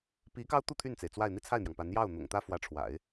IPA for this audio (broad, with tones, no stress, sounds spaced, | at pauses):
p i˧˥ k ɑ˥ ʊ̯ t̪ u˥˧ t̪ʰ y˥˩ n t͡s e˩ ɪ̯ t͡s w a˥˧ ɪ̯ n̪ i˥˧ t͡sʰ a˥˩ ɪ̯ n̪ j ɑ˩ ŋ p a˧˥ n j ɑ˥˩ ʊ̯ n̪ ʊ̰˨˩ ŋ t̪ ä˥ f w ä˧˥ ʈ͡ʂʰ w a̰˨˩˦ ɪ̯